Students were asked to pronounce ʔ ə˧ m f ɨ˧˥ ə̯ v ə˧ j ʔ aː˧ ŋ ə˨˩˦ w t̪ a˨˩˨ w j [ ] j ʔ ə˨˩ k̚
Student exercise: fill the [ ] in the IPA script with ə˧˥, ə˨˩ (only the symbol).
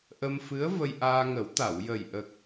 ə˨˩